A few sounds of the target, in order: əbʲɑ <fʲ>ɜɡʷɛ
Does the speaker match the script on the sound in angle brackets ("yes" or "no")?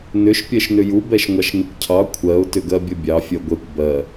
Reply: yes